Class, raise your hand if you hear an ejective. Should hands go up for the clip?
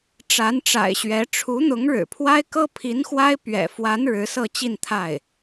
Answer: no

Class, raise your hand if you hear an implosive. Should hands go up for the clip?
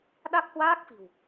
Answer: yes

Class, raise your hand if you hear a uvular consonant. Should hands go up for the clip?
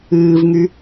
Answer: no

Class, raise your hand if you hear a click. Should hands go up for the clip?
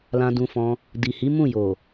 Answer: no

